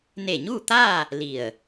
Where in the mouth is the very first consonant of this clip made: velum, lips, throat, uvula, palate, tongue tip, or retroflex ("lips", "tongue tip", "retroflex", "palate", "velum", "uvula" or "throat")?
tongue tip